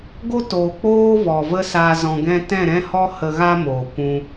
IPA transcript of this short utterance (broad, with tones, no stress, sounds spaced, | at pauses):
ɡ o˦ t oː˨ k͡p oː˦ v ɔ˨ v ə˦ s a˧ z ɔ̃˧ ɡ ɛ̃˦ t ɛ̃˦˨ ɾ ɛ̃˦ h ɔ˦ h ə˧ ɣ a˦ m oː˨ kʷ ũ˧